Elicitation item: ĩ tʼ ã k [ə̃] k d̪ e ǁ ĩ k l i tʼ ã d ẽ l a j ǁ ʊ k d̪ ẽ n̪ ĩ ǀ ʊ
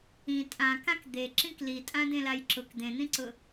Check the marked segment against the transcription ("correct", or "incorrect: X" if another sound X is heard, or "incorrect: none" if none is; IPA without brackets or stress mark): incorrect: ã